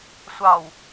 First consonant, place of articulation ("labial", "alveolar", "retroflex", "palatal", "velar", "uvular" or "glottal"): alveolar